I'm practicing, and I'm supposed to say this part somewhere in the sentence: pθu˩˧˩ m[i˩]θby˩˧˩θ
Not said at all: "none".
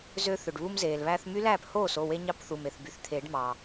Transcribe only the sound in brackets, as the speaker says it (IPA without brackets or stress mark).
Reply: e˩